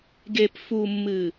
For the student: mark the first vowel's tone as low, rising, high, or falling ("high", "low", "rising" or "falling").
low